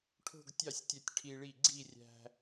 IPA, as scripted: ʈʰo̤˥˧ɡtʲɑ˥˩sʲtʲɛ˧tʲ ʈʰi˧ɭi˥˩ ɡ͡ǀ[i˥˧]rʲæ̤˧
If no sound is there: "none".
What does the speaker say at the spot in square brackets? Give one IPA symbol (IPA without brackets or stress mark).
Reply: i˥˧